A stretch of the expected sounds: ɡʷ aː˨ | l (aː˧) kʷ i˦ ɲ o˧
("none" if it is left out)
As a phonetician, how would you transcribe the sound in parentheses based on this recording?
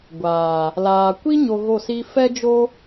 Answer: aː˨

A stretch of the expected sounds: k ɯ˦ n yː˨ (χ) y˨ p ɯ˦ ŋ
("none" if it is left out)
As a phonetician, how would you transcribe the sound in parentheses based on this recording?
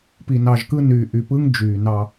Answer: ʔ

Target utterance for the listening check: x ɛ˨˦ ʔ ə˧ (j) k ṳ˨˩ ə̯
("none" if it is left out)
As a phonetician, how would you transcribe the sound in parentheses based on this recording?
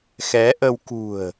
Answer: w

